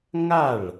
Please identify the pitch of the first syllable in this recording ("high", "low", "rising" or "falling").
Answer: falling